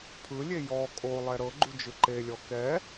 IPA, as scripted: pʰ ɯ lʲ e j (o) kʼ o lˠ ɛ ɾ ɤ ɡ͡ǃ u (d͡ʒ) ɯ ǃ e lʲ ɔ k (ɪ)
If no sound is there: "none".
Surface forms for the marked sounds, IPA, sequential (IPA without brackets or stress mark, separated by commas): ɔ, d͡ʒ, ɛ